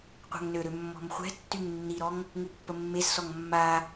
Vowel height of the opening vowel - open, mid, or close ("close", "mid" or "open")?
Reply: open